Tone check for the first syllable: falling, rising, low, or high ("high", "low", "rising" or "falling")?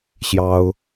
high